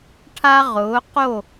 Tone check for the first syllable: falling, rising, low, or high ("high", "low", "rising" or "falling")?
high